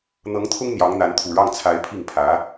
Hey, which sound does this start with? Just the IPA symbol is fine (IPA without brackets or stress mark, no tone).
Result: n̪